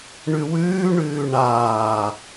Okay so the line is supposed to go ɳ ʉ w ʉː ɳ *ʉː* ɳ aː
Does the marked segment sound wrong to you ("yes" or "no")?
no